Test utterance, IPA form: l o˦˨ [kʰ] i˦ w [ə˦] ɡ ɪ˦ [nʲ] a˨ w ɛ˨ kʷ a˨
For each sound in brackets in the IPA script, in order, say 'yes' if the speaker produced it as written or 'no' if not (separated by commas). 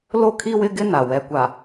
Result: yes, no, no